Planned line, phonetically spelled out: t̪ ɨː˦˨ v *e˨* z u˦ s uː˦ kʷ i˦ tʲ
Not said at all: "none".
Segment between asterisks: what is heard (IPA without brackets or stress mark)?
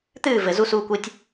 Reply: ɘ˨